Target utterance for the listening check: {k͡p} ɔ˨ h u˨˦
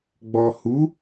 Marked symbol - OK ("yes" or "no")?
no